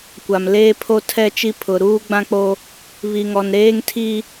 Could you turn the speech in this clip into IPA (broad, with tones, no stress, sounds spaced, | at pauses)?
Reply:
kʷ a˨ m l eː˦ pʰ o˦ tʰ ɛ˦˨ t͡ʃ i˦ pʰ ʊ˨ ɾ uː˦ ɡ͡b ã˦ k͡p o˦ | β i˨ ŋ ɔ˨ n ɾ eː˦ ŋ tʰ i˦